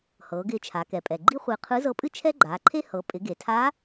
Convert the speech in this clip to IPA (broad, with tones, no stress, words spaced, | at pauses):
hɤː˩˧ɡɪː˧t͡ʃʰa˩˧kɛ˩˧ pʼɛ˩ɡ͡ǃi˥χʷɪː˧ qʰɯ˧˥zɤ˧˥pʼɨ˥ t͡ʃʰɛ˥ɡ͡ǃaː˩˧ǃʰe˥ hɤ˩˧ pʼɪ˩˧ɡe˩tʰa˧˥